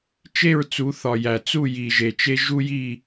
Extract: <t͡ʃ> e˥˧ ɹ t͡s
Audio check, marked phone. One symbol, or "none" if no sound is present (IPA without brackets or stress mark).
t͡ʃ